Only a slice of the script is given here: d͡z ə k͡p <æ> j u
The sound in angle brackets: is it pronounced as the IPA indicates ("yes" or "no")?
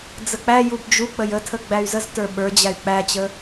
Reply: yes